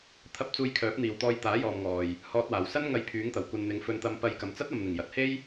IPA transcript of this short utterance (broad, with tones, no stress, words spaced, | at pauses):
t̪ʰɐ˧p̚ t͡suː˧jkʰœː˨˥p̚n̪iː˨wt̪ɔː˧j t̪aː˨˥jɔː˨mŋɔː˨j | hɔː˨t̚waː˨˩wsɐ˥n ŋɐ˧jpʰyː˨˥ŋt̪ɐ˨˩w kʷɐ˨nn̪ɪ˨ŋ fɵ˧nt̪ɐ˧mpɐ˧j kɐ˨mt͡sɐ˥t̚ɐ˨mn̪ɪ˨˩ŋ jɐ˨t̚he˥j